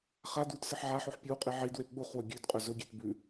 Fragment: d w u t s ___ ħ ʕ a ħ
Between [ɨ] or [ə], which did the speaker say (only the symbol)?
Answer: ɨ